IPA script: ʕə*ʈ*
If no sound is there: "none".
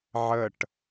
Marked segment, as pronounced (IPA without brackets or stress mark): ʈ